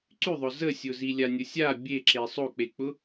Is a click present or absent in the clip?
present